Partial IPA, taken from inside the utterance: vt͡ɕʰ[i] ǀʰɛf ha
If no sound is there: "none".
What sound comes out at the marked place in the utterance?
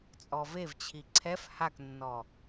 i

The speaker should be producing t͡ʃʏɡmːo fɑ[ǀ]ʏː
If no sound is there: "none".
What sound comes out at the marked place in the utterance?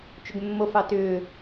t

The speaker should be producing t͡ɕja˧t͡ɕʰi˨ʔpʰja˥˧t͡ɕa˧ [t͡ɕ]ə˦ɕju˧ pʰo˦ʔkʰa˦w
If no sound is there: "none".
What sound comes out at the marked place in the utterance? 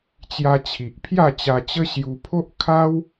t͡ɕ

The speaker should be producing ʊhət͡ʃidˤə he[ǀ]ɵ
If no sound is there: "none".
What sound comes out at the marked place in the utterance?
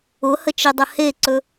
ǀ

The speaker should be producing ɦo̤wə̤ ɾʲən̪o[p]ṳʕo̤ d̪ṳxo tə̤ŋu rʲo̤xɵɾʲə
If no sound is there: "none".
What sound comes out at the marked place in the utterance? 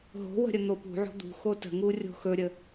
p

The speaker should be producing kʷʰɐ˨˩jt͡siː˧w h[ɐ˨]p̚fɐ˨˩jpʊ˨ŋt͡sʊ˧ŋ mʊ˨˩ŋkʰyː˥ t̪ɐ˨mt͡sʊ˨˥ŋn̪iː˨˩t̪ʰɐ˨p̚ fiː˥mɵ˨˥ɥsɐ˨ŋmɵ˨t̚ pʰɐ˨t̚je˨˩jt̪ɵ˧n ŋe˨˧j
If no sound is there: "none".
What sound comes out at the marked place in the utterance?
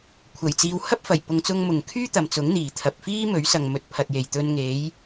ɐ˥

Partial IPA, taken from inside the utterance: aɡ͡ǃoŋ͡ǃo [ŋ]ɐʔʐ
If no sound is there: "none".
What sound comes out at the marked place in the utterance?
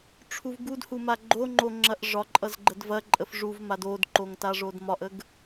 ŋ͡ǁ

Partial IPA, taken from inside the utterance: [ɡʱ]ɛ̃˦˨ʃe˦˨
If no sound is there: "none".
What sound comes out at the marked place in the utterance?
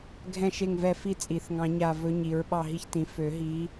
ɡʱ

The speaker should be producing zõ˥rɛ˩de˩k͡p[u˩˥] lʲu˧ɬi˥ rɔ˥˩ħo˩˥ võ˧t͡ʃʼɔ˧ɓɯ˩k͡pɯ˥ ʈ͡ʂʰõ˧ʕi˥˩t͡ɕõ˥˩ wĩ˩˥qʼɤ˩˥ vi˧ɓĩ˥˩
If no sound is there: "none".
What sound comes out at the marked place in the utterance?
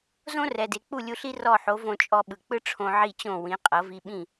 u˥˩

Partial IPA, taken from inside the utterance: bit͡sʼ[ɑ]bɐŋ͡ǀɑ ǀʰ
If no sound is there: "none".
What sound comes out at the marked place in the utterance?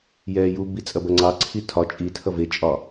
ɐ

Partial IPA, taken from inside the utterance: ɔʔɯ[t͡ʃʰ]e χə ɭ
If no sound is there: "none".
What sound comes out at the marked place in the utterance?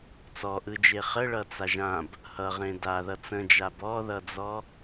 d͡ʒ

